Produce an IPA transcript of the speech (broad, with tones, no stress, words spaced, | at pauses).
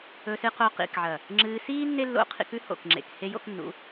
ɵ˧sɨ˧qo˧ qḭ˨kʕɐ˨ | ŋ͡ǁɨː˧ siː˦ nːe˦lːo̰˧qʰḭ˧k ʉ˦ho̰˨kŋ͡ǁḛ˨k he˦jo̰˦knːṵ˨˦